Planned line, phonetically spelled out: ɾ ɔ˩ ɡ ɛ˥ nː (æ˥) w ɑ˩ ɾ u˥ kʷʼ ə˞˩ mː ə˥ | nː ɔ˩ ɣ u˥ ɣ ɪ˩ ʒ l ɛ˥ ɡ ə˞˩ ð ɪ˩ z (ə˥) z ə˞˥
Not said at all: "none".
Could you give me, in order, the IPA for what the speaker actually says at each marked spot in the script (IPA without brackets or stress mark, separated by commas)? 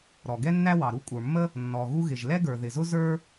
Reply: æ˥, ʊ˥